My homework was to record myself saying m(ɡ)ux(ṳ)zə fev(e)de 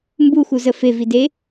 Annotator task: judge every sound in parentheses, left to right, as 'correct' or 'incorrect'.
incorrect, incorrect, incorrect

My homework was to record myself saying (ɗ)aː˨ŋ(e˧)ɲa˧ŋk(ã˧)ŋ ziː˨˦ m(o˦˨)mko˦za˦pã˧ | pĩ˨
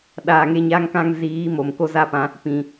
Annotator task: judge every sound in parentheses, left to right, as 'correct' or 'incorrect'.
correct, correct, correct, incorrect

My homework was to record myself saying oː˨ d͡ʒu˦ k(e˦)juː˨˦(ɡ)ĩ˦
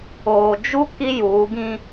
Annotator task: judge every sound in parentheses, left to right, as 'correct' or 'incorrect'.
incorrect, correct

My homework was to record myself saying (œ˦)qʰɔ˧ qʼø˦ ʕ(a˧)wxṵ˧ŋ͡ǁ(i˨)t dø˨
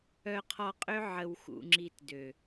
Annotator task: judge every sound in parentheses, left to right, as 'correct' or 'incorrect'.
incorrect, incorrect, incorrect

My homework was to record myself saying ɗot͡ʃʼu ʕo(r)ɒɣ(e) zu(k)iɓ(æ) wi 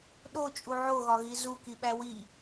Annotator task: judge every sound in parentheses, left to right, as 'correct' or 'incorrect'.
incorrect, incorrect, correct, correct

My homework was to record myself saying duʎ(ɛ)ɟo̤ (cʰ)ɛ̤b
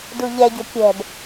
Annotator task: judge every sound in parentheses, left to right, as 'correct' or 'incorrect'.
correct, incorrect

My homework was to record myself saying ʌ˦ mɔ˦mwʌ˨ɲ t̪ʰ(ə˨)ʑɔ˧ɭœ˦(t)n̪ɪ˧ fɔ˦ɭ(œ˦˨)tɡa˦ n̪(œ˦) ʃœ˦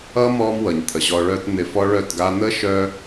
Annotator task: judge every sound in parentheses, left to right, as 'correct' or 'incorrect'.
correct, correct, correct, incorrect

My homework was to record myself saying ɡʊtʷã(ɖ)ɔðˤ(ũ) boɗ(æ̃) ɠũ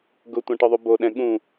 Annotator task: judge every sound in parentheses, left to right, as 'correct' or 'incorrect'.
incorrect, incorrect, incorrect

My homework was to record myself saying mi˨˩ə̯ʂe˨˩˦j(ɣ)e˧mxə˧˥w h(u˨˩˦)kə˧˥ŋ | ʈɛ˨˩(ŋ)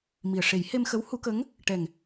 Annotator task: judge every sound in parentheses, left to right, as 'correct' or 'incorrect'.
incorrect, correct, correct

